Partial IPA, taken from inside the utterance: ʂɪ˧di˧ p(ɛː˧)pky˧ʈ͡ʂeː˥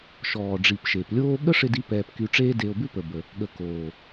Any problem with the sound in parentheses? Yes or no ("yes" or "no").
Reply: no